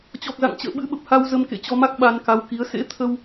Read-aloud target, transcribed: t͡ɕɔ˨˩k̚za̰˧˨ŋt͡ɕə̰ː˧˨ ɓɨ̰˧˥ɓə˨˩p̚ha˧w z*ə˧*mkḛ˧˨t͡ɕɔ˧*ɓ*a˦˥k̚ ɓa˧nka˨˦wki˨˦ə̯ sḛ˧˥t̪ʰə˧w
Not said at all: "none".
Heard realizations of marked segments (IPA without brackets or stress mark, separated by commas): ə˧, m